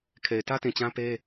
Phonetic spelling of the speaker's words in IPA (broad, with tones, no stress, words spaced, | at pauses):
kʰe˨ɪ̯tä˦tĩ˨ t͡ɕã˦pe˦